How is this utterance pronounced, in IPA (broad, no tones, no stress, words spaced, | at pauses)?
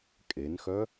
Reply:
kʼenxœ